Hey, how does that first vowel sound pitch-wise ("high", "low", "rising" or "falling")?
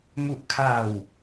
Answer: low